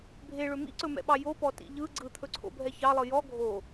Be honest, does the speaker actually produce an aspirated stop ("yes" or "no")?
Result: yes